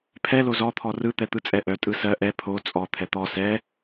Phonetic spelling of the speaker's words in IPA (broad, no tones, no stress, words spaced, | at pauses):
pʰɛ lozɔ t̪ʰɔrɯ t̪ɛt̪ɯt͡sʼɛʔœ tʼɯsɜ ʔɛ pʰo t͡sʼɔ t̪ʰɛt̪ɔ sɛ